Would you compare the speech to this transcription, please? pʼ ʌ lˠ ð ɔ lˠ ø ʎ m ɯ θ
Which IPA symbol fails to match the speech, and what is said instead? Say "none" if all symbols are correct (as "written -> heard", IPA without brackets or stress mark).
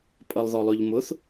ɯ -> ʊ